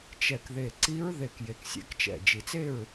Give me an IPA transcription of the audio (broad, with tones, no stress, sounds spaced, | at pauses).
t͡ʃ ɛ˧˩ k ð e˧˩ ǀ i˧˥ ɹ ð e˧˩ k j e˧˩ k sʲ ɛ̰˧˥ k t͡ʃ ɛ̰˧˩ d͡ʒ i˧˩ t͡s e˥˨ ɹ